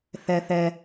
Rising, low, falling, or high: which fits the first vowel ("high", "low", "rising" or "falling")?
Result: low